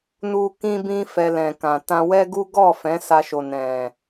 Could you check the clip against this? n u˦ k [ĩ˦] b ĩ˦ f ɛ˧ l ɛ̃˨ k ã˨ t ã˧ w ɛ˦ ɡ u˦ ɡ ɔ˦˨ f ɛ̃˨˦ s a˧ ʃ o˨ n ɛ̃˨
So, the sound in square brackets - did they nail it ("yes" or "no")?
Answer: yes